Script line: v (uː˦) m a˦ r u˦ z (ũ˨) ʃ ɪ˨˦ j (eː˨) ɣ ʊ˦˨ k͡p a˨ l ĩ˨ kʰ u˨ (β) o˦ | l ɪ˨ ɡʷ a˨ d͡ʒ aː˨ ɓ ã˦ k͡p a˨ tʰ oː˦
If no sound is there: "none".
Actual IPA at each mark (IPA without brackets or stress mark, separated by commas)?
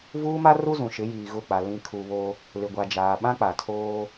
uː˦, ũ˨, iː˨, β